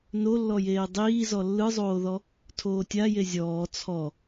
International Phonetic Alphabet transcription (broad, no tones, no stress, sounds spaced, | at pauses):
n o lː ɔ j eː dˤ iː z ɔ lː ɯ zˤ oː ð ɔ | tʰ oː tʲ a j e zʲ ɔː t͡sʰ ɔ